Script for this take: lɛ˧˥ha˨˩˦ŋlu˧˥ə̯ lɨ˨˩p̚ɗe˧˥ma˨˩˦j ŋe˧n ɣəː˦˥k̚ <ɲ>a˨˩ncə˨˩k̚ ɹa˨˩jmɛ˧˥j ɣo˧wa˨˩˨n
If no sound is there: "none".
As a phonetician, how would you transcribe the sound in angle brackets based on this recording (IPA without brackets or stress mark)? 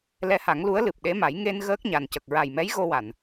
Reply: ɲ